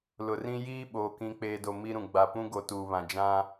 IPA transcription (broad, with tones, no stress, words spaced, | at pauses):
lʊ˨rĩ˦ jiː˦ɓoː˨kĩ˨˦ k͡peː˨do˨ mi˦ɾũ˨ ɡ͡ba˨pũ˦ ɡo˨tuː˨βã˨ d͡ʒã˦